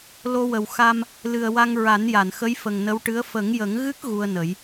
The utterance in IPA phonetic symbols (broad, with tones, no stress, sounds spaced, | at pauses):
l o˧ w ə˨˩ w x a˧ m | l ɨ˨˩ ə̯ w a˧ ŋ ɹ a˨˩˦ n j a˨˩˨ n x ə˧˥ j f ə˨˩ ŋ n ə˧˥ w ʈ ɨ˧˥ ə̯ f ə˨˩˦ ŋ j ə˨˩˦ ŋ ɣ ɨ˦˥ k̚ ɣ u˧ ə̯ n ə˨˩˦ j